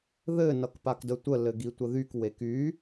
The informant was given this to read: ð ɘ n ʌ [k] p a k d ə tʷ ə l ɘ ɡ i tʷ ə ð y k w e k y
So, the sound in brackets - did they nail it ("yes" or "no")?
yes